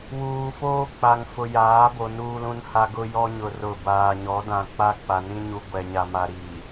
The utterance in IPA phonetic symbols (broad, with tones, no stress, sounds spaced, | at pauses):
w uː˨ f oː˦ k͡p a˨ ŋ f ʊ˨ j aː˨˦ b o˨ n uː˦ l ũ˦ n h a˦ ɡ ʊ˦ j ɔ˦ ɲ ʊ˨ r ʊ˨ b aː˨ ɲ ɔ˨˦ d ã˨ k͡p a˦ k͡p a˨ n ĩ˦ ɲ u˨ ɡʷ ɛ˨ ɲ a˨ m a˨ ɾ i˨